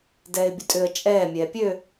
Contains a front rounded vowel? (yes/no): yes